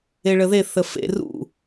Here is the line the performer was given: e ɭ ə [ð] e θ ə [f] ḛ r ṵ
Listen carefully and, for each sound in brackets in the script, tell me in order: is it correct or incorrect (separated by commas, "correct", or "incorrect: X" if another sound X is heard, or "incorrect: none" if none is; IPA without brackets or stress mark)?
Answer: correct, correct